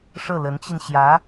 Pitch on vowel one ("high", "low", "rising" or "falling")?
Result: falling